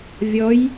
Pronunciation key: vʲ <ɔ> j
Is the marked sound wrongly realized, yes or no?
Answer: no